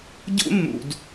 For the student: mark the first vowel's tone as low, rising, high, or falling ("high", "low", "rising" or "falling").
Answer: high